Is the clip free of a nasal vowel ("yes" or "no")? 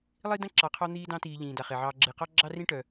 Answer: no